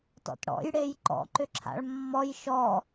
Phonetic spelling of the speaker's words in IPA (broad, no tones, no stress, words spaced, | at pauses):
tɔ̰tɽɔ̰j ɽejǃɔ̰ ǃʏǁʰa̰ɭmːɔj ʃɔ